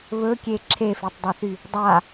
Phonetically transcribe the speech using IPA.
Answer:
βɵkʲe ǁʰefetˤdˤɛθy | dˤa

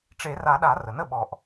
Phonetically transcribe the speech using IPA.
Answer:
ʈ͡ʂe˨˩˦ra˨˩˦ɗa˨˩˦ rə˩nə˥˨ɓɔ˨˩˦ʔ

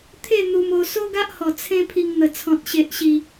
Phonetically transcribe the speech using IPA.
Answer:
t̪ʰe˥˧ n̪u˧mo˧ so˦ɡa˦ʔhɔ˨˩ t͡sʰẽ˧ pʰi˧ŋn̪ə˨˩t͡sʰɔ̃˨t̚ ɕe˨ʔɕi˨˩

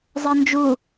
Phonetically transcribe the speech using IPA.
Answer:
zˤɜnd͡ʒu

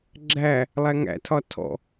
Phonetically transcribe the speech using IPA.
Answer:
ɡ͡ǁæ | lˠæŋæ̰tʰɒ tʰɔ̰

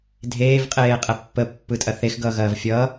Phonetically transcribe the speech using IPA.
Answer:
dʱeːvqʼeːqʼɛ pːəpːɯtʼɐ θexɡʌːɣɐːv fʲʌː

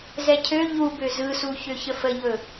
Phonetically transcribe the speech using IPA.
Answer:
zɛcʰø ʎubø zɯsu çøçəfəʎɵ

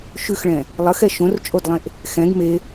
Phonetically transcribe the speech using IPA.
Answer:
ʃʉxɭɛ̃ | lˠəxɛ ʃõrt͡ʃʼodlˠẽʔ | xɛ̃ɡ me

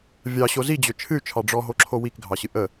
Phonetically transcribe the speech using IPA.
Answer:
vʲɑɕo zid͡ʑø t͡ʃʰɨy̯t͡ʃʰɑ ɖ͡ʐɔɦoǁʰo wikɡʱɑɕɨ ʔə

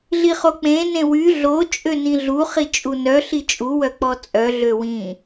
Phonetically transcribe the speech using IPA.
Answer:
ɮiχok͡pẽ nẽwy ɮo t͡ʃʼønĩɮu χit͡ʃʼunœ ɬit͡ʃʼu wœk͡pɔt͡sʼœ ɮøwĩ

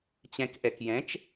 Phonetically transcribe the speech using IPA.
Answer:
t͡ɕɛ̃k ʔɛkjɛ̃t͡ʃ

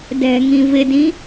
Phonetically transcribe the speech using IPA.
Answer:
dɛ̤ŋĩ vɪdĩ

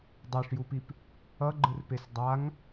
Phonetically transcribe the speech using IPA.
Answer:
dˤeʂjupip | ʌɡ͡ǃɯrpes dˤaŋ

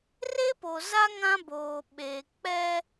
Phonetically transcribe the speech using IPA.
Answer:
re˦po˨za˦ ŋã˦boː˨ ɓeː˨k͡pɛ˦

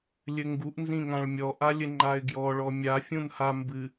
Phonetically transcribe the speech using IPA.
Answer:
lʲɘŋɡuʔ nzĩŋãɭmʲɔ ʔalʲɘŋ͡ǃaɪ̯ɡjɔ ɭɔmʲa fʲũnha mbɨ

